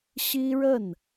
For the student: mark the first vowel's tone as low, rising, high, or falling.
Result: high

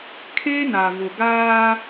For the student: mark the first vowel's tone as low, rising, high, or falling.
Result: high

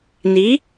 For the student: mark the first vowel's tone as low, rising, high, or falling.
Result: rising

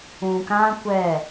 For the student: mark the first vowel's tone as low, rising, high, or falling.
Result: low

